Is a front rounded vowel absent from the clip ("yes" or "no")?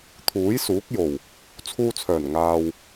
no